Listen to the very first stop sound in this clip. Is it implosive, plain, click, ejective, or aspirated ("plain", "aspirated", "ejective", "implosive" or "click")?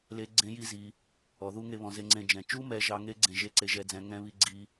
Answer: click